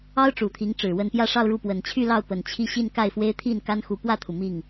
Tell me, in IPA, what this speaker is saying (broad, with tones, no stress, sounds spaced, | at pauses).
ɑ˥ ʊ̯ ʈ͡ʂ u˨˩ t̪ʰ i˧˥ ŋ ʈ͡ʂ ɻ̩˨˩ w ə˥˧ n p j ä˥˧ ʂ ɑ˥˧ ʊ̯ ɻ u˥˩ p w ə˨˩ n t͡ɕʰ y˥˧ l ɑ˥˩ ʊ̯ p ə˨˩ n t͡ɕʰ i˥˧ ɕ i˥˧ n k a˥˩ ɪ̯ f w e˥ ɪ̯ t̪ʰ i˥˩ n k a˥ n x u˧˥ p w ä˥˩ t̪ʰ u˩ m i˥˩ ŋ